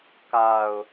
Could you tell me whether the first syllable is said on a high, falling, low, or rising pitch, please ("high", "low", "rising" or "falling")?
low